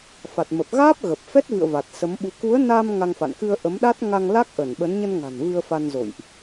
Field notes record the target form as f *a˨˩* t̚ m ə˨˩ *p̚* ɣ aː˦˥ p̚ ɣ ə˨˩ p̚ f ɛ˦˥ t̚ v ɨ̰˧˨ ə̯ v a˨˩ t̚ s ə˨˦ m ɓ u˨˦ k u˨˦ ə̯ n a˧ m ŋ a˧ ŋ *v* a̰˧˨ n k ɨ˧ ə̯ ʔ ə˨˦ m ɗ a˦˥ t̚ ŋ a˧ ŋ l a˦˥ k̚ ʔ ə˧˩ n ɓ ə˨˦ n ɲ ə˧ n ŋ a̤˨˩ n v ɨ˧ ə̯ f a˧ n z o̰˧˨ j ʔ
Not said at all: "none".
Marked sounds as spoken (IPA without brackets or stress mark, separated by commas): a˨˩, p̚, f